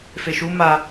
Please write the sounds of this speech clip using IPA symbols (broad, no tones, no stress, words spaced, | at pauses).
feʃu ma